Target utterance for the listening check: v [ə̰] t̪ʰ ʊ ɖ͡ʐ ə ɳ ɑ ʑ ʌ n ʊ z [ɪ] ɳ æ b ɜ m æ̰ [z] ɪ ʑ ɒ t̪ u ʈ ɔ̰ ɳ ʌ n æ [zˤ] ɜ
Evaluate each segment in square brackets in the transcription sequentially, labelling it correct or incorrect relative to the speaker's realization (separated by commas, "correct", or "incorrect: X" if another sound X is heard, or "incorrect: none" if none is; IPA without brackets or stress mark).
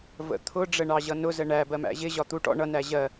correct, incorrect: ə, incorrect: ʑ, incorrect: ʑ